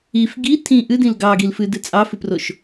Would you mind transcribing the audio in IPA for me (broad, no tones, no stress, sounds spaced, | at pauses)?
i f ɡ i tʰ ĩ ʔ ɨ d ĩ l ɡ ɑ ɡ i l f ɨ d ɨ t͡sʼ ɑ f ɨ p r o ʃ